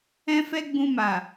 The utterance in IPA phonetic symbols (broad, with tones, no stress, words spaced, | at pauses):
ɛ̃˦fɛ˦ ɡ͡bũ˧ma˨